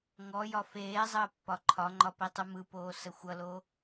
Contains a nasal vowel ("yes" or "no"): no